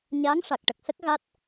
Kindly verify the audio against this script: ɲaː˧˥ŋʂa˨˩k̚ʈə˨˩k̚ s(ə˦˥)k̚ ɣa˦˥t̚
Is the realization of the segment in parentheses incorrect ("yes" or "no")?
no